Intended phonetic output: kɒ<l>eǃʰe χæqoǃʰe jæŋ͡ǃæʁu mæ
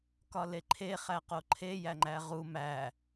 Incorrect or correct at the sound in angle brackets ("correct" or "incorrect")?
correct